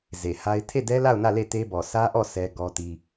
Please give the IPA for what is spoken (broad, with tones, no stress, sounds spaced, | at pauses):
z e˨ h a˦ ɪ̯ tʰ e˦˨ d ɛ˦ l a˦˨ ʊ̯ n ä˦˨ l e˦˨ t e˦ b ɔ˨ sʰ ä˦ ʔ ɔ˦˨ s ɛ˦ ɡ ɔ˦ t i˦